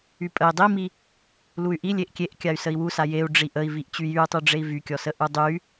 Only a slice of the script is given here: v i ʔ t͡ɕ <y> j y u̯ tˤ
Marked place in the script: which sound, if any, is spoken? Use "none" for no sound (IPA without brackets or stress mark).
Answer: y